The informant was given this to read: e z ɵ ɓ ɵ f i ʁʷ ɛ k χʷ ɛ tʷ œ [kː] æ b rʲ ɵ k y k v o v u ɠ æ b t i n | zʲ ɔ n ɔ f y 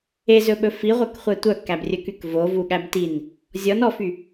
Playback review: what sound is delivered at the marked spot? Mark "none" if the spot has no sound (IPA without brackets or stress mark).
kː